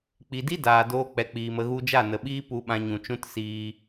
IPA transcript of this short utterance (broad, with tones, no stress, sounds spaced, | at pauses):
k͡p i˨ d i˦ d aː˨ d oː˧ k͡p ɛ˨ k͡p iː˨ m ə˧ ɣ u˧ d͡ʒ a˦˨ n ə˨ ɓ iː˦ p u˧ ɓ ã˧ ɲ ũ˨ t͡ʃ ũ˦ t s iː˧